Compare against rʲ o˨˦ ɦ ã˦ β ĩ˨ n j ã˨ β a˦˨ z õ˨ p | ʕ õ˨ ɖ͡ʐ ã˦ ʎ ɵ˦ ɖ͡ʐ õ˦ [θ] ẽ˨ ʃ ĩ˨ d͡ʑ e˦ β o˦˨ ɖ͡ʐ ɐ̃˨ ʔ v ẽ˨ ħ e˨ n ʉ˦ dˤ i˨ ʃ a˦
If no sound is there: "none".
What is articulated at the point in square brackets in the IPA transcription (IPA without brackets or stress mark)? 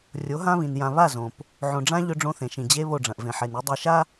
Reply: θ